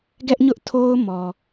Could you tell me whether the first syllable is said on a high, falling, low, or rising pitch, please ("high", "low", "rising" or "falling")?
high